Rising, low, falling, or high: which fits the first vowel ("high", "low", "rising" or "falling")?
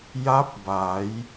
rising